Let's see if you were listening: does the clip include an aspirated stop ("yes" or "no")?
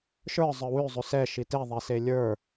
no